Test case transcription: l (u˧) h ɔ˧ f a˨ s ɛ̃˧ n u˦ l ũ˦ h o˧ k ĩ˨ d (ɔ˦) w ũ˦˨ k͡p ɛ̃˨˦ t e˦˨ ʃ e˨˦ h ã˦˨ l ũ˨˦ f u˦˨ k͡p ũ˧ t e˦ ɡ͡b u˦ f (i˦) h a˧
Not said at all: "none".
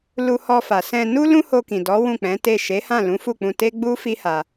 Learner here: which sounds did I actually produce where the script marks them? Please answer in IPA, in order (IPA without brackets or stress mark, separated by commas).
u˧, ɔ˨˦, i˦